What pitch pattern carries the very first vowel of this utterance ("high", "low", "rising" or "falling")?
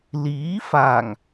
rising